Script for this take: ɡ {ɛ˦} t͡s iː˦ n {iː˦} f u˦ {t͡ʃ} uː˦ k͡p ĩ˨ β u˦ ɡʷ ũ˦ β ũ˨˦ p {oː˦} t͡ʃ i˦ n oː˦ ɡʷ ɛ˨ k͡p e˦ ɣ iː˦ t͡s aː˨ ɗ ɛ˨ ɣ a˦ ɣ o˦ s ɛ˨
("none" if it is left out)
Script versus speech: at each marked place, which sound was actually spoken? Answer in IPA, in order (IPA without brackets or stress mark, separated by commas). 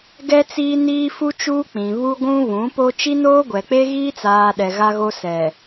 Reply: ɛ˦, iː˦, t͡ʃ, o˦